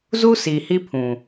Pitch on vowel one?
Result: high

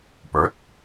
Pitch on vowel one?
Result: rising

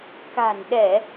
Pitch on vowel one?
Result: low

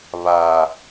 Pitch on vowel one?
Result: low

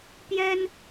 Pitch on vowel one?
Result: high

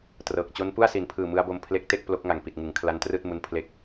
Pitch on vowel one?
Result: low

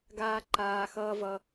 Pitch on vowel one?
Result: high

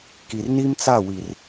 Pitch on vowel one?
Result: low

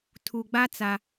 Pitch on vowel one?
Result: low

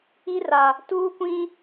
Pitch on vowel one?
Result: high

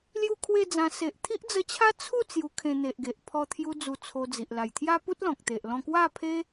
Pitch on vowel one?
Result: falling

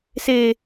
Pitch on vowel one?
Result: high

